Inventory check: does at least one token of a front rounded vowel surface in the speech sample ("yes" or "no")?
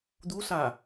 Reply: no